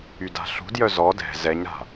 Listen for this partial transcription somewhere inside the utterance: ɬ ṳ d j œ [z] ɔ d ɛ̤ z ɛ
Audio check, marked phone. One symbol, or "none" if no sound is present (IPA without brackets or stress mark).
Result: z